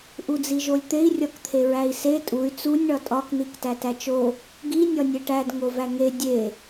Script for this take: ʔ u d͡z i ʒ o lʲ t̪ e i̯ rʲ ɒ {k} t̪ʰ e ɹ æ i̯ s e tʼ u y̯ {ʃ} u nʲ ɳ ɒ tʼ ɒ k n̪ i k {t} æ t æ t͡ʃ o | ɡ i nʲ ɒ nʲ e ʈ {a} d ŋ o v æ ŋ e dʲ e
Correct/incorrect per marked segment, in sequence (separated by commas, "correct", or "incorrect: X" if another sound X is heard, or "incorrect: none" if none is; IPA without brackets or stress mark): correct, incorrect: t͡s, correct, incorrect: æ